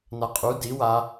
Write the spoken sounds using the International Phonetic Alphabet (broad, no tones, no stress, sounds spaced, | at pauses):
n a qʼ u d i w a